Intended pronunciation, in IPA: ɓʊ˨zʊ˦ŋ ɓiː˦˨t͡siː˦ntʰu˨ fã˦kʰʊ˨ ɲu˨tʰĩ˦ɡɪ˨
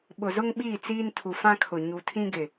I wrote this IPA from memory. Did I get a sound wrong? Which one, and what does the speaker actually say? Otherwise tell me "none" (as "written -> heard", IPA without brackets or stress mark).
none